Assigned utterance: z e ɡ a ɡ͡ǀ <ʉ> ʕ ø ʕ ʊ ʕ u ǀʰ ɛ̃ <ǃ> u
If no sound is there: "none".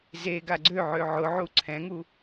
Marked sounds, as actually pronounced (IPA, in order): ø, ŋ

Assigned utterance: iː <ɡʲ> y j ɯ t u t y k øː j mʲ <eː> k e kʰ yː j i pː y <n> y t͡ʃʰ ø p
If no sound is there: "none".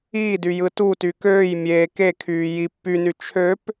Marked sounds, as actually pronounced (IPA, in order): d, eː, n

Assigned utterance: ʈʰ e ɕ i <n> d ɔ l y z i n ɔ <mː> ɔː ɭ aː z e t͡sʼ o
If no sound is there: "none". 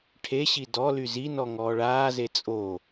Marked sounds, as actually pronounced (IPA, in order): none, ŋ

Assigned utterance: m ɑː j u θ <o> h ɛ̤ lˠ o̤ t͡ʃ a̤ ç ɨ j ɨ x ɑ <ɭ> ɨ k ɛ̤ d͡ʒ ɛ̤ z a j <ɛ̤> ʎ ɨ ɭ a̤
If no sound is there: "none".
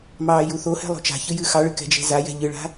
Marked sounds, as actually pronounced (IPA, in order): o, ɭ, ɛ̤

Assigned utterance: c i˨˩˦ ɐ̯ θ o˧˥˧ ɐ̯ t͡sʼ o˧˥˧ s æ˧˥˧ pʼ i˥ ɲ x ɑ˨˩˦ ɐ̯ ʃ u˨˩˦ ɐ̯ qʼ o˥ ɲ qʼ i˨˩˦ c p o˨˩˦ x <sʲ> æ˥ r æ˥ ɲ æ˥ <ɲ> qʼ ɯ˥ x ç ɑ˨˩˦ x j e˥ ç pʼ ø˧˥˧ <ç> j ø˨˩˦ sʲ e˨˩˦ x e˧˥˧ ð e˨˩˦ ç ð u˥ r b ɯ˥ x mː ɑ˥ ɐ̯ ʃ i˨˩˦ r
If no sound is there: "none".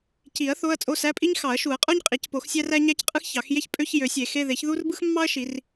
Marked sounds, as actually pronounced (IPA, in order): sʲ, c, ç

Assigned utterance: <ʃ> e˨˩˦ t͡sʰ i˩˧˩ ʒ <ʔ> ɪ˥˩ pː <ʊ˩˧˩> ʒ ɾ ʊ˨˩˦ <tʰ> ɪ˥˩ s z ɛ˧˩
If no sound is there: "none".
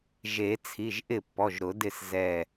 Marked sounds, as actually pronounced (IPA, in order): ʒ, ʔ, ɔ˩˧˩, d

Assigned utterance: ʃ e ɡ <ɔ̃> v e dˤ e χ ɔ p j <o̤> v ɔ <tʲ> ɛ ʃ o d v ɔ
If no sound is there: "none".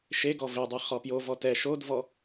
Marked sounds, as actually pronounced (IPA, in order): ɔ, o, t

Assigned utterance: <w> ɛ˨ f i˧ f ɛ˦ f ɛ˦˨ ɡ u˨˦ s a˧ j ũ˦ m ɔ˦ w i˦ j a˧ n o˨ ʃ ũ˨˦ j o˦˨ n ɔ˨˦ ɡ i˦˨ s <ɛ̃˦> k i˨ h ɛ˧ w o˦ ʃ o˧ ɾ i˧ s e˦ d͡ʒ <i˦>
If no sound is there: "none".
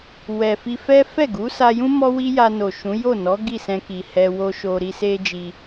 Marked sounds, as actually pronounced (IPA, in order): w, ɛ̃˧, i˧

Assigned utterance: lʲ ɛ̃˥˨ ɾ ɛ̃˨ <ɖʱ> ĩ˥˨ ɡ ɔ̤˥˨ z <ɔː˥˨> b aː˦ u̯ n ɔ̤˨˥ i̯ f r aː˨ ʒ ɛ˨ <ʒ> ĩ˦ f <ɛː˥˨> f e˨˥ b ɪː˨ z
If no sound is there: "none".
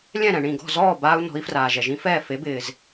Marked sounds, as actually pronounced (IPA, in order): ɳ, ɔː˥˨, ʒ, ɛː˥˨

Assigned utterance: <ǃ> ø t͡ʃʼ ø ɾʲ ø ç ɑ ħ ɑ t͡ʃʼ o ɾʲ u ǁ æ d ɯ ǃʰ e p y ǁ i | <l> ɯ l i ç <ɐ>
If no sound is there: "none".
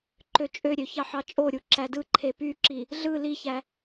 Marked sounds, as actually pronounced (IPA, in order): ǃ, ɮ, æ

